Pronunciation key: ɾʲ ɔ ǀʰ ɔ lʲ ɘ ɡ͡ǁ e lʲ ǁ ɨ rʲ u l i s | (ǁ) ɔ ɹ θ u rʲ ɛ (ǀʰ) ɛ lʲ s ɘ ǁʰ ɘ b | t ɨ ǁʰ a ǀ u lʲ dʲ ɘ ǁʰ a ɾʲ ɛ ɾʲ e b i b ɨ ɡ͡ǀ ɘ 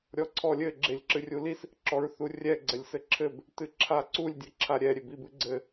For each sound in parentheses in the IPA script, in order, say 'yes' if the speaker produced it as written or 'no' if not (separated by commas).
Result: yes, no